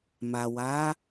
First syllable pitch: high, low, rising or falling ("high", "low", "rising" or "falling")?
low